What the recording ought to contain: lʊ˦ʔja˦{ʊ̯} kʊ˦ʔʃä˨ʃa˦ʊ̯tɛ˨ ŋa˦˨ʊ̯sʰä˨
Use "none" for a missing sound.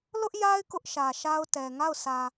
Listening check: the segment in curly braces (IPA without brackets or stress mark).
ɪ̯